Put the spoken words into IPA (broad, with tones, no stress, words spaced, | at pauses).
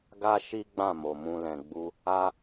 ɡa˦ʃi˦ɡ͡bã˦˨ mo˨mũ˧ lɛ̃˨ɡ͡bu˧ | a˦